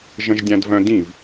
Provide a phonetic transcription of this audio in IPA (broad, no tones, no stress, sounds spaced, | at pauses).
ʒ ə̃ ʒ dʲ ã d v œ̃ d ĩ v